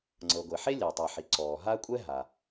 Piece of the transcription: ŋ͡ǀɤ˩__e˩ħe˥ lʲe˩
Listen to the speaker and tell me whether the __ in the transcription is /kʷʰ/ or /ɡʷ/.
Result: ɡʷ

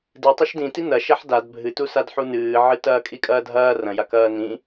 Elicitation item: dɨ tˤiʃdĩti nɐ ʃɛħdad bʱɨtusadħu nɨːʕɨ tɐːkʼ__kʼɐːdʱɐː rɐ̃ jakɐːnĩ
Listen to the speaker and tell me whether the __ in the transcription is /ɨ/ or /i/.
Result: i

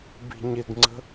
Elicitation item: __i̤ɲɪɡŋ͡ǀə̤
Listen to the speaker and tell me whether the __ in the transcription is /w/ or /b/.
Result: b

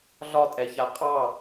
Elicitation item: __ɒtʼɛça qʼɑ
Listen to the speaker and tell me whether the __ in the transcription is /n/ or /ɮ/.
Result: ɮ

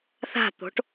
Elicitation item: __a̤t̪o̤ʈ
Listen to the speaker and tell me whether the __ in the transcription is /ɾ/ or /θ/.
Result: θ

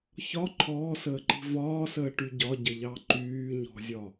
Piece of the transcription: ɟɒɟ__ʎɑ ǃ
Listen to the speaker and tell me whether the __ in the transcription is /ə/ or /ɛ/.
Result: ə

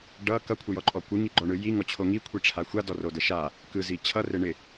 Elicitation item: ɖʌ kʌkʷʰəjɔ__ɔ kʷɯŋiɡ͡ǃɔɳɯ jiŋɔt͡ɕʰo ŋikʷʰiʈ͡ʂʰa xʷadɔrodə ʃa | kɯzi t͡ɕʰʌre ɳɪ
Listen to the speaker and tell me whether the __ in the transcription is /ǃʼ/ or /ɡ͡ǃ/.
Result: ǃʼ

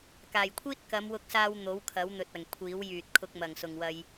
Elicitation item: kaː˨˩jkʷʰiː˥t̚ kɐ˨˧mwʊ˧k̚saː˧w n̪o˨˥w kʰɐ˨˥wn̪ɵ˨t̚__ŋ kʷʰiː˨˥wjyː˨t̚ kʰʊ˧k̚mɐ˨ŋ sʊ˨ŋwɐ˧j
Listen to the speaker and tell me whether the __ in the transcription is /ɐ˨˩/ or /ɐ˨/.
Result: ɐ˨˩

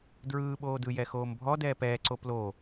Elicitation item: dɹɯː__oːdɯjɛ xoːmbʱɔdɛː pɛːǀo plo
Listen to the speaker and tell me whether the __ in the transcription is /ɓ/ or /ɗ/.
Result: ɓ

